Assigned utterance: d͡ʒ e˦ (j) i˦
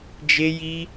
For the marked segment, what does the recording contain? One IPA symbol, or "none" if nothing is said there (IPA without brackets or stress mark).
j